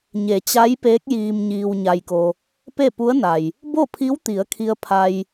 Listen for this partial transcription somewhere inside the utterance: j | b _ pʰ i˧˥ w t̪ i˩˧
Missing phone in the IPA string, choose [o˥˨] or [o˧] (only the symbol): o˥˨